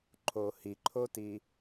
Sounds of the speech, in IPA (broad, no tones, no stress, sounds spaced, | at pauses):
ǃʰ o h i ǃʰ o t i